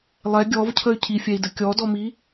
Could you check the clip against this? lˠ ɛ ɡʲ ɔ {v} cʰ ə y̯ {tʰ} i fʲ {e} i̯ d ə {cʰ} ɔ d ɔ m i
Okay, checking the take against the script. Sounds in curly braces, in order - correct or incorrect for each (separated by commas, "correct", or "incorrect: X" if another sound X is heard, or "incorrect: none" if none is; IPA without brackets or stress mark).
correct, incorrect: cʰ, incorrect: ɛ, incorrect: kʲ